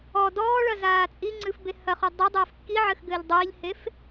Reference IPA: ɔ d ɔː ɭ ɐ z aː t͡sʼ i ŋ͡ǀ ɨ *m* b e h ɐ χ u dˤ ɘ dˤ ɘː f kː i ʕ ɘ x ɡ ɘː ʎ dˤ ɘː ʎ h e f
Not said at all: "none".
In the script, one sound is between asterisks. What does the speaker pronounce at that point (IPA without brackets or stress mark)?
f